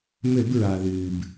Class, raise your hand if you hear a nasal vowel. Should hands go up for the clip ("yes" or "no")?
no